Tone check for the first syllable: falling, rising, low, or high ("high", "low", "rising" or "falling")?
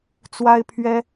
high